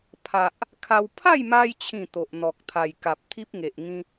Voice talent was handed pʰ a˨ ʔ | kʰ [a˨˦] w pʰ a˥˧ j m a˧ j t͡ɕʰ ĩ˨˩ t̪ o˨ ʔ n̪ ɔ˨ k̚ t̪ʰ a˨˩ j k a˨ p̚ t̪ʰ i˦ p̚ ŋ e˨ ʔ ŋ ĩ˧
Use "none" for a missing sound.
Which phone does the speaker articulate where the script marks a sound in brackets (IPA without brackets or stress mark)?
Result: a˧